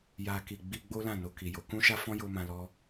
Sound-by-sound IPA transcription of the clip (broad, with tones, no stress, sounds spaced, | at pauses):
j a˧ k i˨ ɡ͡b i˧ ɡ͡b o˦ l ã˦˨ n o˧ k i˨ j o˨˦ k ũ˦ ʃ a˦ f ɔ̃˦ j o˦ m ã˧ l ɔ˦